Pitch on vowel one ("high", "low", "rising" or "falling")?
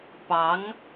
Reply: rising